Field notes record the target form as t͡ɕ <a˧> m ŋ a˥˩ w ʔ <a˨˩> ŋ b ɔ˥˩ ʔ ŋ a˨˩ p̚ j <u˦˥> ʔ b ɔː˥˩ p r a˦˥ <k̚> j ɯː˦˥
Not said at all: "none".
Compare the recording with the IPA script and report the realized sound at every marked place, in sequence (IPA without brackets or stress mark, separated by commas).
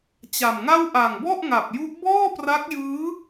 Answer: a˨˩, a˨˩, u˦˥, k̚